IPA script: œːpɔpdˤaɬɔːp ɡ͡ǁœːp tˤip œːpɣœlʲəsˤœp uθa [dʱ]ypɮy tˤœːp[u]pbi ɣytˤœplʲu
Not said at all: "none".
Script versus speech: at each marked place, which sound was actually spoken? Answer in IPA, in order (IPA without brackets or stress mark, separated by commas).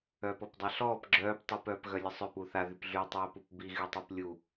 ð, u